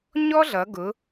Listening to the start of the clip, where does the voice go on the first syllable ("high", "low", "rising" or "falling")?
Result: high